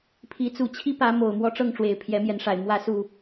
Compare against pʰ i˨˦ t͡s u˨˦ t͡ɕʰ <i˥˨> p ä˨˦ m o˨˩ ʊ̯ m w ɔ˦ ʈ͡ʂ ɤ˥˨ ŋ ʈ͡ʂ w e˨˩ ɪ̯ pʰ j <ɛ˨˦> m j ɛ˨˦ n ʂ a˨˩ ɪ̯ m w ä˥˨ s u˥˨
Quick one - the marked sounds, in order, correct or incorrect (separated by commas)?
incorrect, correct